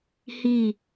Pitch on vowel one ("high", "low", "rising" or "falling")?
falling